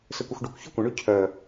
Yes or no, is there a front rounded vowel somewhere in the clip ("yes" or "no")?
yes